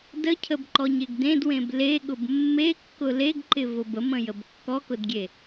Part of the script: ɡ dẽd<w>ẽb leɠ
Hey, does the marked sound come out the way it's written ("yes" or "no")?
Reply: yes